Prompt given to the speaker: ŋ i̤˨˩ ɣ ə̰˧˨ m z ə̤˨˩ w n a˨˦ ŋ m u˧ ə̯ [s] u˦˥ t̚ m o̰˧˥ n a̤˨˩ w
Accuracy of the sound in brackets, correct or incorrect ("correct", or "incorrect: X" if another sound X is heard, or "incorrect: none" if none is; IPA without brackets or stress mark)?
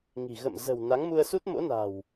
correct